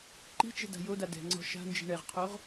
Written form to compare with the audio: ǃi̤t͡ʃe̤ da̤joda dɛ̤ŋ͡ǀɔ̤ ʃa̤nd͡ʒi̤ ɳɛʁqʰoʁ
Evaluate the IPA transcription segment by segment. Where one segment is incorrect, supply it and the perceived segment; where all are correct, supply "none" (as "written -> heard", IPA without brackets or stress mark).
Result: e̤ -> ɛ̤